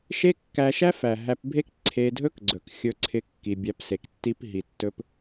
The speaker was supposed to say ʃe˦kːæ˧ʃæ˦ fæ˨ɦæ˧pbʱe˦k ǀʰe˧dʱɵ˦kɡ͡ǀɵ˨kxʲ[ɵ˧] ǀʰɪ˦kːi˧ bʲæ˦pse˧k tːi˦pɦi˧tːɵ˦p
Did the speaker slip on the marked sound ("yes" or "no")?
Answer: no